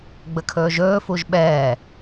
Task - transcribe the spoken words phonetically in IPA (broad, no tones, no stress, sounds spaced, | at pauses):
ɡ͡b ə kʰ ɵː ʒ ɵː f u ʒ ɓ ɛː